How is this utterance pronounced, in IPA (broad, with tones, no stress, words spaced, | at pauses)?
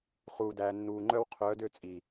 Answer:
χuː˨dæː˨nːuː˨ ŋ͡ǃœ˦w qʰœː˨˦dø˦˨ t͡sʼi˨